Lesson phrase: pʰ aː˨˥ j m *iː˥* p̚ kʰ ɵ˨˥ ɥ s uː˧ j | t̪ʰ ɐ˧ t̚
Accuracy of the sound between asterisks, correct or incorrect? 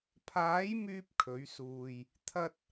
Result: incorrect